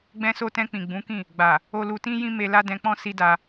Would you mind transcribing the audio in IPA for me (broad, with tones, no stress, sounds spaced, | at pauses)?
ɡ͡b ɛ̃˧ s o˧ t ɛ̃˧ k͡p ĩ˨ ɡ͡b ũ˨˦ k ĩ˦˨ | ɡ͡b a˨ | o˧ l u˧ t ĩ˦ j ĩ˦ m e˧ l a˦ d ɛ̃˧ k͡p ɔ̃˦ s i˦ d a˧